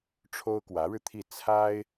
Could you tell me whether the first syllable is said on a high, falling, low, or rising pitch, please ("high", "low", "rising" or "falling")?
high